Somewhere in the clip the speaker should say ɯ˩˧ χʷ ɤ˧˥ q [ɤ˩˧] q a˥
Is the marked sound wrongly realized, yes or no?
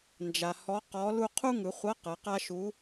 no